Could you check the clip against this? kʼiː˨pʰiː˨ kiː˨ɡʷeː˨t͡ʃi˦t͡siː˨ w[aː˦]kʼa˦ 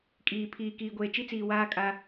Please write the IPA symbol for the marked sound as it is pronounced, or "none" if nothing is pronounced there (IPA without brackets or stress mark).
aː˦